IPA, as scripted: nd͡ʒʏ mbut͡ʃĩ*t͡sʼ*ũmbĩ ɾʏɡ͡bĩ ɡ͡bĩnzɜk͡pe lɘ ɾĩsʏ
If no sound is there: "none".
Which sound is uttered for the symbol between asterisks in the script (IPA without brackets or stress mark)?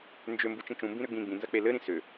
t͡ʃ